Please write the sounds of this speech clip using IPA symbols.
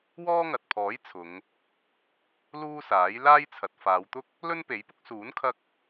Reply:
w ɔː˥ ŋ ɐ˨ t̚ pʰ ɔː˨˥ j t͡sʰ ʊ˨˧ ŋ | l uː˥ s aː˨˥ j l aː˥ j t͡sʰ ɐ˨ t̚ f aː˨˧ w t̪ ʊ˥ k̚ | l ɵ˥ n p e˨˥ j p ʊ˥ k̚ s uː˨˥ n kʰ ɐ˧ k̚

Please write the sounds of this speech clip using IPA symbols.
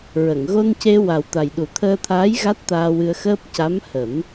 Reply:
ɹ ə˨˩˨ ŋ ɣ o˧ n c e˧ w a˨˩ w t̪ a˨˩ j ɗ u˨˩˦ t̪ʰ əː˧ t̪ʰ aː˧˥ j ɣ a˦˥ t̚ t̪ aː˧ w ɨ˧ ə̯ x əː˦˥ p̚ c a˧˥ m h ə˨˩˦ m

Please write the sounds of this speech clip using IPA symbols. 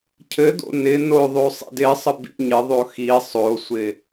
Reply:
cʰ ɘ d o̰ n ɪ n o ðˤ o sˤ ḭ d ɪ sˤ ə b ḭ ɲ ɪ ðˤ o x i sˤ o sʷ ɪ

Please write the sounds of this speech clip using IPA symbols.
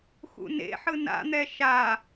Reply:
x ṵ n ḛ ħ ɯ n a̰ n̪ ɛ ʃ a

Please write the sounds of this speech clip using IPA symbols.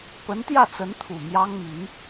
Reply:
p ə˧˥ n t̪ j ä˥˩ t͡s ə˧˥ n t̪ʰ u˨˩ m j ɑ˥ ŋ m i˧˥ n

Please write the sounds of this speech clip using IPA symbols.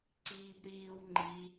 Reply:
ǀ iː b ɾ iː w ŋ͡ǃ i

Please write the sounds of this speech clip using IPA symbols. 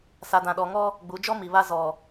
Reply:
s a˨ d ã˨ ɗ ɔ˨ ŋ ɔ˦ | ɡ͡b u˨˦ d͡ʒ ɔ˦ m i˨ β a˦ z ɔ˨

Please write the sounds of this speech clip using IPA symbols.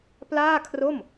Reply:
p l aː˥˩ kʰ r o˥˩ m

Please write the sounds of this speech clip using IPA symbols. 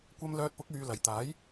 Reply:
kʷ ɐ˥ m l œː˧ t̚ p ʊ˨˥ k̚ yː˨ l ɐ˨ j t̪ aː˨˥ j

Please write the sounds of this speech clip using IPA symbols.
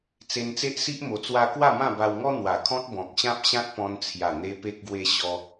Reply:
t͡s e˧ n t͡s e˦ ʔ s i˦ ʔ m o˧ t͡s w a˦ k w a˥˧ m ã˥˧ b a˧ w ŋ ɔ˦ n̪ w a˨˩ kʰ ɔ̃˦ t̚ b ɔ̃˨ k̚ ɕ ã˦ p̚ ɕ ã˦ t̚ p ɔ̃˧ n t͡sʰ j a˨˩ n̪ e˧ p e˦ k̚ ɡ w e˦ ɕ ɔ˧

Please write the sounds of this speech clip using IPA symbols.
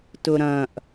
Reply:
t ʊ ɾ ɐ̃ ʔ

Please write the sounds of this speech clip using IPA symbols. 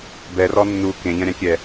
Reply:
b ɛ r ɔ nː u k ẽ ʎ ɐ̃ ɾʲ ã kʲ ɛ

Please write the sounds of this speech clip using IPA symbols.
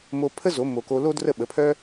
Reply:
m o˧ pʰ ə˥ z o˩˥ m o˧ k o˥ l o˥ d r ə˥˩ ɓ ə˩˥ pʰ œ˥

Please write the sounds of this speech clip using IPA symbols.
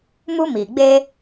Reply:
m u˦ m iː˨ ɡ͡b eː˦

